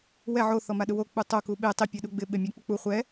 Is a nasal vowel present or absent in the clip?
absent